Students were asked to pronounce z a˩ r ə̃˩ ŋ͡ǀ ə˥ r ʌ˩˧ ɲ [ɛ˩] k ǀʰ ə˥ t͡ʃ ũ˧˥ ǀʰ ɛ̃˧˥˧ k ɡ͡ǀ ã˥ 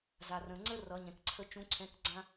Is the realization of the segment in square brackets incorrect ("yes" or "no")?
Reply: yes